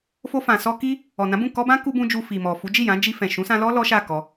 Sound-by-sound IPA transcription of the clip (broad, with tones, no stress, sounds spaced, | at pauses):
f o˧ f ã˨ s ɔ˧ k i˦ | ɔ˨ n ã˨˦ b ũ˦˨ k ɔ˧ b ã˦ k u˦ b ũ˦ d͡ʒ u˧ f i˨ m ɔ˨ f u˨˦ d͡ʒ i˦˨ j ã˨˦ d͡ʒ i˧ f ɛ̃˨ ʃ ũ˨˦ s ã˧ l ɔ˦ l ɔ˦ ʃ a˦˨ k ɔ˧